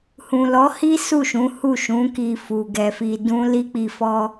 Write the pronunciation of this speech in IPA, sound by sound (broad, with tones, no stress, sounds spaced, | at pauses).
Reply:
h ũ˨ l ɔ˨˦ h i˦ s u˦˨ ʃ ũ˨˦ h u˦˨ ʃ ũ˨˦ k i˧ f u˨ ɡ ɛ˧ f i˧ d ũ˦ l i˦ k͡p i˧ f ɔ˦